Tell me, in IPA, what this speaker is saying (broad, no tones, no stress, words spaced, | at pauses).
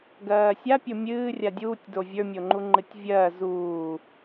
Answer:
ɡɜːsʲapʲo mʲɨː rʲadʲuːtʲdo vʲə˞mʲoŋ͡ǃu ŋ͡ǃɨtʲvʲɜː zuː